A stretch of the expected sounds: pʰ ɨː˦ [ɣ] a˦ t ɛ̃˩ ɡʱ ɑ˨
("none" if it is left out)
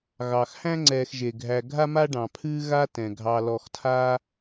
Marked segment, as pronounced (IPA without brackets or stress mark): ɣ